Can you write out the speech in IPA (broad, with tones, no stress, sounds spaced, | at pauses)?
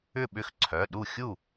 ʏ˥˩ ɓ ʏ˥˩ x ǀʰ œ˩˧˩ ɗ u˥˩ xʲ u˥˩